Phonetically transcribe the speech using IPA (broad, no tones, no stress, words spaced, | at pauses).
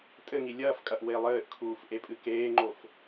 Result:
tʼɘŋi lʲɐːfkʼɐʔ welˠɘːʔkʰuːf ʔepʼɨkeːŋ͡ǃof